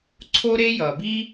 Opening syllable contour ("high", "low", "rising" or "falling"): high